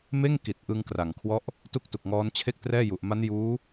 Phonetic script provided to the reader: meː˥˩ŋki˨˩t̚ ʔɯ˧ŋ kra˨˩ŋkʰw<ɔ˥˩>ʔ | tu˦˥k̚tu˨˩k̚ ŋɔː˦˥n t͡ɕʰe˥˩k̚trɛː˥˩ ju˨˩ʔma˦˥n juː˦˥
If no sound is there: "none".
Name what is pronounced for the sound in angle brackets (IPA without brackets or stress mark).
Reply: ɔ˥˩